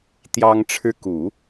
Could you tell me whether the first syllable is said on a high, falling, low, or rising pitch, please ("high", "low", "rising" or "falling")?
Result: high